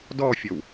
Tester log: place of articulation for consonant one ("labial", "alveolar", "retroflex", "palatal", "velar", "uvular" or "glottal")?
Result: alveolar